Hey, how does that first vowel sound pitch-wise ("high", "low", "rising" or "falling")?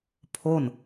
falling